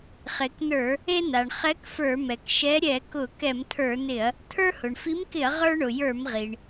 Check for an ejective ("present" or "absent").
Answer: absent